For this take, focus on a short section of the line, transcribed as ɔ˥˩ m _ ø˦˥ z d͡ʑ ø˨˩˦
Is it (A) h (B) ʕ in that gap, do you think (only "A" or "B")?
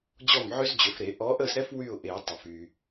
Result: B